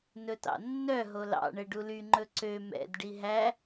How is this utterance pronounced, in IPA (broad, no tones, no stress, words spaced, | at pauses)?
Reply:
nɵtɑ̰nːœ ɦolɑ̰ ɳɛɖuly ŋ͡ǃɵǀø mɛ̰d ɖiɦæ